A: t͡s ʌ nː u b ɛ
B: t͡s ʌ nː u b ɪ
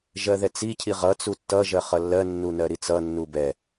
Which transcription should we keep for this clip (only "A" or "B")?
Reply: A